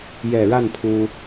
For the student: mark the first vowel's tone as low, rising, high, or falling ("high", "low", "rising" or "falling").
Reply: low